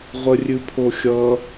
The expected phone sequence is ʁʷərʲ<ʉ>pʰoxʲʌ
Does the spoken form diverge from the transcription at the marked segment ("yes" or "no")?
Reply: no